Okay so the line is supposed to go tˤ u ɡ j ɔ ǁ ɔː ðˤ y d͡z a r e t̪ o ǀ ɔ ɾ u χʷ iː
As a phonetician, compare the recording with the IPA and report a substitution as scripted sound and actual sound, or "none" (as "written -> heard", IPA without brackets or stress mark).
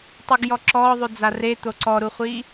none